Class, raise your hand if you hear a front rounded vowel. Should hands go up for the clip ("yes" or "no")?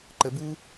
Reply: no